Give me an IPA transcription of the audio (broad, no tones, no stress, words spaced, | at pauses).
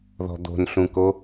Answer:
ðɔ̤d̪o̤nɬũko